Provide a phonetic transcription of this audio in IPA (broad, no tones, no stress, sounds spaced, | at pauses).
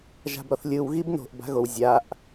ʒ a̤ b ɾ ɔ θ lʲ ɯ w ɣ i b n o̤ ʔ b a̤ ɣ o w zʲ a ʔ